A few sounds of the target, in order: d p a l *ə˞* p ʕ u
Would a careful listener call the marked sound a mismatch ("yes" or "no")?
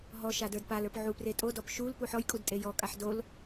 no